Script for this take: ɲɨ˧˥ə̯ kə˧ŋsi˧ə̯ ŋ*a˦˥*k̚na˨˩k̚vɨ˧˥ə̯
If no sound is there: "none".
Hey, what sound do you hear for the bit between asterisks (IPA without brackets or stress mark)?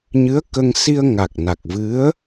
a˨˩